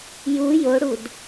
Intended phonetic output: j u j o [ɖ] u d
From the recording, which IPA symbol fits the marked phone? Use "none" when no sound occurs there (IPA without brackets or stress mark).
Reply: ɽ